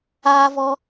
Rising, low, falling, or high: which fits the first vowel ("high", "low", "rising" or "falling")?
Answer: high